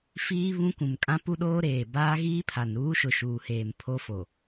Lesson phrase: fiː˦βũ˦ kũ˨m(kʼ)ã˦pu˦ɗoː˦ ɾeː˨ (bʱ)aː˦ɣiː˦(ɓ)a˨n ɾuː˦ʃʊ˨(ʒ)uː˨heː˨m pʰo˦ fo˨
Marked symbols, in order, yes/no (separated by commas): yes, no, no, no